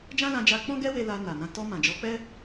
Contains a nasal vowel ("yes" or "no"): yes